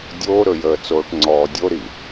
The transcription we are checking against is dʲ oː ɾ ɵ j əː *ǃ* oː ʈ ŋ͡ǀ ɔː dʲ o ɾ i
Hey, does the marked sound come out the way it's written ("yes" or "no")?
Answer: no